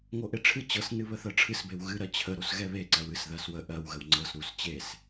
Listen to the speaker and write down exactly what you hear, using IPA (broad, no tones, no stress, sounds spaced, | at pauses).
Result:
ŋ o ʔ e ʈ͡ʂʰ ɨ t͡ɕ ɤ s n ɨ β ə θ ɜ ʈ͡ʂʰ ɨ s b e w ɣ ɨ ɾ ɜ t͡ɕʰ ə ɾ o s ɣ ɛ β e ǀ ɜ w ɨ s ð ɜ s w ə ʔ ɜ w ɣ ə w ŋ͡ǀ ɤ s ɾ u s t͡ɕ e s